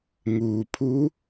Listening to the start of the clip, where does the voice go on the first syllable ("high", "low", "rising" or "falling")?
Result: low